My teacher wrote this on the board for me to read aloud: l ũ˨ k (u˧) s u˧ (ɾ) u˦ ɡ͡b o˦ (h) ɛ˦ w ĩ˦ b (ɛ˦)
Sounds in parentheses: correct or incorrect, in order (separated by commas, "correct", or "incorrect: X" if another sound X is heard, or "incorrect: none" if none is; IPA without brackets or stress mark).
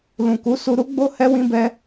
incorrect: u˨˦, correct, correct, correct